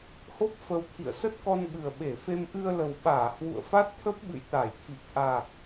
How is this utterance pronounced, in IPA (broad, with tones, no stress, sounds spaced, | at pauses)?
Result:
h o˦˥ p̚ f ə˧ w t̪ʰ ḭ˧˨ ə̯ s ə˦˥ t̚ k ɔ˧ n ɓ ɨ˨˩ ə̯ ɓ e˧˩ f e˧ m ʔ ɨ˧ ə̯ l ə˨˩ w ɓ aː˧˩ h w ṵ˧˨ ə̯ f a˦˥ t̚ t̪ʰ ə˦˥ p̚ ɓ ɨ̰˧˨ j t̪ a˧˩ j t̪ʰ i˨˩ k̚ ʔ a˨˩ k̚